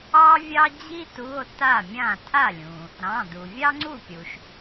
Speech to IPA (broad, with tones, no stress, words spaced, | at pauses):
ɑ˥vʲɑ˥d͡ʑi˥ tu˧˥˧o̯ ta˥˩mʲã˥˩ tʰa˥˩lʲũ˩ | ɾɑ̃˩˧˩ du˩vʲɑ˥ŋ͡ǀu˥˩pʲu˩ʃ